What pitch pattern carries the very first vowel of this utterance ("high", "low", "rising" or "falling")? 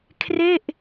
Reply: falling